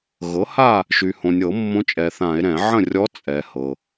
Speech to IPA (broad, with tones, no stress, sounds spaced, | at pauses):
ɣ ɤ˩˥ h a˥˨ | ʃ y˩ h õ˩ nʲ ɤ˧˩˧ mː õ˧˥ t͡ʃʼ ɛ˩ θ ã˧˩˧ e̯ ɾ ɛ̃˧˩˧ ʕ ə̃˥˨ rʲ ɔ˧˥ t͡sʼ ɛ˩ h ɤ˩